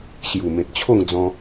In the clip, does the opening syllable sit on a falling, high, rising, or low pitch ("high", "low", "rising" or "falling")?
low